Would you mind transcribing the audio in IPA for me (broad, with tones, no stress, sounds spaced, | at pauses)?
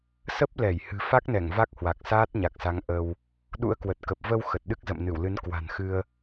s ə˦˥ p̚ l ɛ˧˩ j h ɨ̤˨˩ f a˦˥ k̚ n ɛ˧˩ ŋ v a˦˥ k̚ h w a˨˩ k̚ s aː˦˥ t̚ ɲ a˨˩ k̚ s a˨˦ ŋ ʔ ə˧ w | ɗ ṵ˧˥ ə̯ k w ə˨˩ t̚ k ə˨˩ p̚ v ə˧ w x ə˨˩ t̚ ɗ ɨ˦˥ k̚ z ə̰˧˨ m n ɨ˧˩ w l ɨ˨˦ n k w a̤˨˩ n x ɨ˧ ə̯